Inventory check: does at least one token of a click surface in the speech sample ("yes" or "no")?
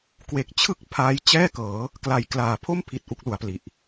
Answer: no